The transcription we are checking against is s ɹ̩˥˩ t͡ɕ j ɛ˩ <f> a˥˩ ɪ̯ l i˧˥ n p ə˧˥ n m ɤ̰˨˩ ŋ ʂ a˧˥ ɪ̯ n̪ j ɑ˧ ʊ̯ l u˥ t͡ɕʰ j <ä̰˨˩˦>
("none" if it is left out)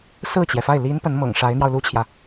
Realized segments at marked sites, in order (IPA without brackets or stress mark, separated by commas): f, ä˨